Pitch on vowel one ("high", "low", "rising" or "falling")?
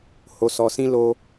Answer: low